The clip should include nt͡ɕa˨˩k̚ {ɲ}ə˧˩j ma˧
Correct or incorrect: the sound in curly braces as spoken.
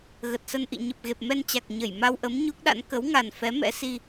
correct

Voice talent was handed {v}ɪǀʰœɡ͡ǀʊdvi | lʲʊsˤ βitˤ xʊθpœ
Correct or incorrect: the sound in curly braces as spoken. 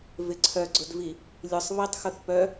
correct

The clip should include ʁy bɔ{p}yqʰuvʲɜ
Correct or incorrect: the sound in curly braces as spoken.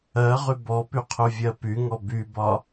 correct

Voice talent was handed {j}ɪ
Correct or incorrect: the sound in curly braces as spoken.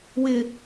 incorrect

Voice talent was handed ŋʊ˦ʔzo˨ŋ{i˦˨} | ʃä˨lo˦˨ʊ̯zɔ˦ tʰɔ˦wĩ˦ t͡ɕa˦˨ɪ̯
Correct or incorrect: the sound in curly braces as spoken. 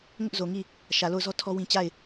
correct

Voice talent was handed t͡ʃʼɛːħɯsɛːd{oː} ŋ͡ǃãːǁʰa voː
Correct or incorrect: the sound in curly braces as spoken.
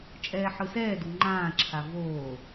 incorrect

